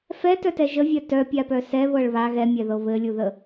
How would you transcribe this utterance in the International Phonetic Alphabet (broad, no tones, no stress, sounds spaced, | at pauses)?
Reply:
f ɛ t œ t ɛ ʒ ə vʲ œ t œ pʲ a p œ s ɛ β ɤ ɭ β a ɣ ɛ mʲ ɛ ð ɤ β ɘ lʲ u ð ə